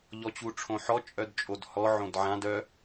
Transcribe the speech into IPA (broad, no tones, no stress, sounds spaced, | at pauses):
ʎ ɔ t͡ɕ u ʈ͡ʂʰ õ ħ ɔ t͡ʃʼ œ d t͡ʃʼ o d h ɔ ʕ õ d ʕ ã d œ